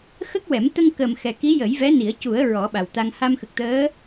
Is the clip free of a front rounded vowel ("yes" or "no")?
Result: yes